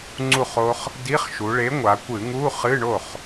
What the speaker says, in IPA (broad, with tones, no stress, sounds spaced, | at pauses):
ŋ͡ǀ u˥˩ χ o˦˥ χ | d i˧˥˧ χ ʃ u˩˧ ɭ e˨˥ ŋʷ a˩˧ kʷ ɨ˧˩˧ ŋ u˧˥˧ χ ɨ˧˥˧ ɳ o˥˩ χ